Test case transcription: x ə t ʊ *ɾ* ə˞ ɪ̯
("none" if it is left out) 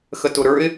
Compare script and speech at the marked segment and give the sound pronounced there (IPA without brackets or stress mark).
ɾ